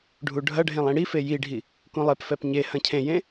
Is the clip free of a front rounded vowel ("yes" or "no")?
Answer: yes